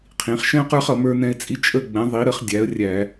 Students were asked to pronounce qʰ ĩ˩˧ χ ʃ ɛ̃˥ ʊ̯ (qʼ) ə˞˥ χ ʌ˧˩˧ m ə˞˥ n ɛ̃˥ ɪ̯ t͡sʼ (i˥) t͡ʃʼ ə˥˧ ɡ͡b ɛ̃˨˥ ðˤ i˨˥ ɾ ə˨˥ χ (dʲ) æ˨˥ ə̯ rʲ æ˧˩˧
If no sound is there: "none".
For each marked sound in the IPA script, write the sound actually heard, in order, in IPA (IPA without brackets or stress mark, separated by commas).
q, i˥, dʲ